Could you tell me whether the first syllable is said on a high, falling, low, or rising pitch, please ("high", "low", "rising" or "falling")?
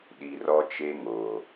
low